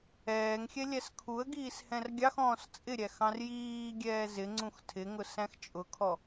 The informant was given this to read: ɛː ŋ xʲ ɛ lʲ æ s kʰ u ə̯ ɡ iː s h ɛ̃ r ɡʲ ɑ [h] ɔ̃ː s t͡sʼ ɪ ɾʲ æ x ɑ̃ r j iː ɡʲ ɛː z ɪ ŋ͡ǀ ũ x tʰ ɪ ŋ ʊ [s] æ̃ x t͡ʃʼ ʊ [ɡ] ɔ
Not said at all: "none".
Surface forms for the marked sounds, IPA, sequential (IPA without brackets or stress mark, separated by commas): x, s, kʰ